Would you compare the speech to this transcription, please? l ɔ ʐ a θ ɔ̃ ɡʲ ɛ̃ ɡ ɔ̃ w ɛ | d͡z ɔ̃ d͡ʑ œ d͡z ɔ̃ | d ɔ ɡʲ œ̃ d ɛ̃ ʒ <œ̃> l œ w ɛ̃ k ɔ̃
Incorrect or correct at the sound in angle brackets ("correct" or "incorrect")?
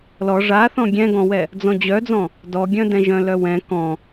correct